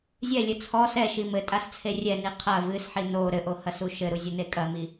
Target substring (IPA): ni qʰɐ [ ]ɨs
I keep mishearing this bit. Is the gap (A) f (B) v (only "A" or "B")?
B